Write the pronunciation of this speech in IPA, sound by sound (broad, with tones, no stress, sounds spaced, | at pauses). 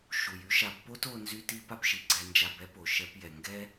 ʃ u˩ j y˥ ʃ a˧ b p o˥ t o˧ n z y˥ t i˥ p a˥ p ʃ i˩ ɡ͡ǀ ɛ˧ n d͡ʒ a˧ b ɛ˥ p o˩ ʃ ɛ˧ p j ɛ˩ ŋ ɡ ɛ˥